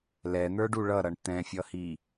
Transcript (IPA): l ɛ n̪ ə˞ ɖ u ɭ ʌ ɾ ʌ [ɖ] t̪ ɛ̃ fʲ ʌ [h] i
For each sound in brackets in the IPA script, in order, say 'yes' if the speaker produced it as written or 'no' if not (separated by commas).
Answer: no, yes